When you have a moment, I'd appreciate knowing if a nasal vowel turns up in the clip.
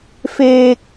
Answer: no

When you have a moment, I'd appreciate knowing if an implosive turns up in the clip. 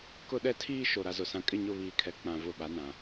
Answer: yes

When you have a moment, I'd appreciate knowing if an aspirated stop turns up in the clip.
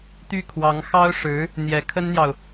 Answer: yes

